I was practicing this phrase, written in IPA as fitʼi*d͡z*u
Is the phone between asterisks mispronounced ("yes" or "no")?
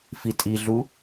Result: yes